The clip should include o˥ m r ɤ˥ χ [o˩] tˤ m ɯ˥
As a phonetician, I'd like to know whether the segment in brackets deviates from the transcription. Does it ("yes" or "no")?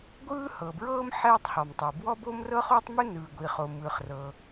yes